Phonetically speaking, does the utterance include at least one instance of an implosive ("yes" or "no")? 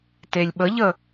yes